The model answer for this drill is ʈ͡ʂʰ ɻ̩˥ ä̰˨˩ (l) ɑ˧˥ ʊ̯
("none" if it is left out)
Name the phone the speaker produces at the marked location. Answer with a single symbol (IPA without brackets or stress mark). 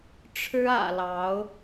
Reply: l